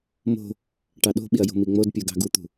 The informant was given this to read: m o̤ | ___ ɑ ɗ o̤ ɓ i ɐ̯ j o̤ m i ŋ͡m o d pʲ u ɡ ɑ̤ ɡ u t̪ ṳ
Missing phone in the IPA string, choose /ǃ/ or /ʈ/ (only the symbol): ʈ